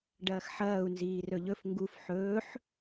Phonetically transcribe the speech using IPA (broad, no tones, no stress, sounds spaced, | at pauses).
ɖ ɐː x ħ ɐː u̯ n z iː r ɵ ʎ ɵ f ŋ ɡ u f ħ ɵː ħ